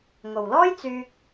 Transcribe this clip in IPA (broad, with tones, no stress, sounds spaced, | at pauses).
ŋ o˨ w l ɔː˥ j t͡s yː˥ k̚